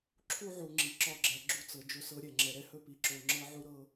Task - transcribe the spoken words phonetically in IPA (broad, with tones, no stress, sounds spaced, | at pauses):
ǁʰ u˦ ʕ u˨ ŋ͡ǁ i˨ ǁ ɒ˦˨ ɡ͡ǁ ɛ˨ ɡ͡ǁ u˦ t͡s ɤ˨ d͡ʒ ɵ˦ s ɤ˦ ɾʲ ɛ˦˨ ŋ͡ǁ ɛ˨ ɾ ɛ˦ h ɵ˦ p i˨˦ ǁ o˨ ŋ͡ǁ ɤ˦ ʕ u˦ ɾ ɤ˦